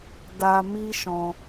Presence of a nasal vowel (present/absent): present